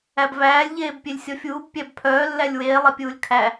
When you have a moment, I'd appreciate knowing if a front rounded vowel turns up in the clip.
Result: yes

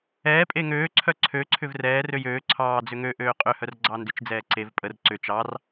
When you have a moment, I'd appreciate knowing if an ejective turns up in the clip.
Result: yes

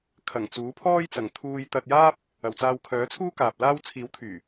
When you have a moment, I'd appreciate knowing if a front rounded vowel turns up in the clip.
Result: yes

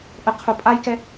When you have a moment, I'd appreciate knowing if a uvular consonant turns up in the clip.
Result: yes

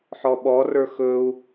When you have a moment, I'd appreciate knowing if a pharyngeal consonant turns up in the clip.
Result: yes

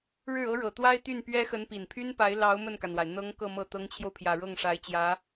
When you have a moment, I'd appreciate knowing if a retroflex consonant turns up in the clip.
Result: yes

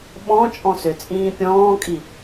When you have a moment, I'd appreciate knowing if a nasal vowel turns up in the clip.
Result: yes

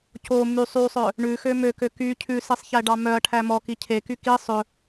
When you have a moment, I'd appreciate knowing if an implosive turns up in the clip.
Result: no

